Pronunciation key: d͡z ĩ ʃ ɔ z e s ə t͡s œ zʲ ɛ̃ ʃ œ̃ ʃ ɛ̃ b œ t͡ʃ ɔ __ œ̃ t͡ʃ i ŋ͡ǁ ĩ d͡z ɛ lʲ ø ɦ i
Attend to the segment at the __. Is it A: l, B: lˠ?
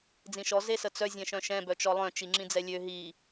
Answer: B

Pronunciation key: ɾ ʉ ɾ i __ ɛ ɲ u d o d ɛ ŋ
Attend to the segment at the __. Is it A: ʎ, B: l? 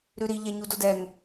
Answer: A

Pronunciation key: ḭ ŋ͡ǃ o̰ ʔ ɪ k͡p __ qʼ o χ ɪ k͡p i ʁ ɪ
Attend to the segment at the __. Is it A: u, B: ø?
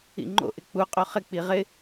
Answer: A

